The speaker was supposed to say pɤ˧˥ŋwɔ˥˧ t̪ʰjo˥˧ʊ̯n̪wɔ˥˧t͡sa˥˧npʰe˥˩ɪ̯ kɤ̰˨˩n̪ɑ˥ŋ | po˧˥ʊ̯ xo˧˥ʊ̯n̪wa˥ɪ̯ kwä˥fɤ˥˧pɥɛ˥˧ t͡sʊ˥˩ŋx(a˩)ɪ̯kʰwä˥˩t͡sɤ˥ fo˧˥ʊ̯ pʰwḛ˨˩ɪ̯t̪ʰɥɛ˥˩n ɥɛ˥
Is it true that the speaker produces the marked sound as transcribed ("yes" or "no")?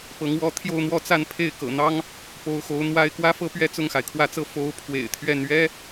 yes